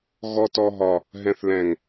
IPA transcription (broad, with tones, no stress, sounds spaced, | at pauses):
ɣ ɔ˨ t ɔ˨ ɦ ɒ˨ | ɦ ɛ̃˨ θ l ɛ̃˨ ŋ